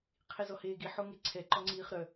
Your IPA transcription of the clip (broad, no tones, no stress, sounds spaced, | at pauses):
qʰ i z ɔ h eː ɡ i ħ o ŋ e ǀʰ ɛ ǃ ɔ ŋ͡ǀ iː χ ɾ œ